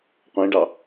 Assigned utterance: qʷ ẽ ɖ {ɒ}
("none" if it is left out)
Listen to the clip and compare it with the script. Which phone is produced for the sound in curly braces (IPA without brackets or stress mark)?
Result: ɑ